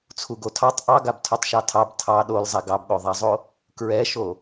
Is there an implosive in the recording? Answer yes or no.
yes